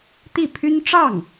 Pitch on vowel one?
falling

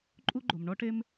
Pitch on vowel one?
high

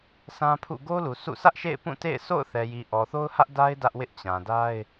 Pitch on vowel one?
high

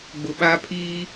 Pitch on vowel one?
low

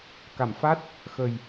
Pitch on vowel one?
low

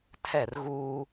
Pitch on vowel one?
falling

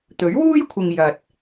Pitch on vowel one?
rising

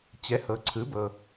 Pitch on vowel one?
rising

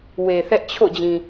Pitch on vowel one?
low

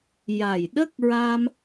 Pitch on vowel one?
low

